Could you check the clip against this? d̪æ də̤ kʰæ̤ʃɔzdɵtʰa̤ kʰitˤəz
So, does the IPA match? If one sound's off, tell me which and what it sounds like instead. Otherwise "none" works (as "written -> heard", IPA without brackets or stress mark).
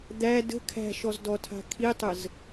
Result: ɵ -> ɔ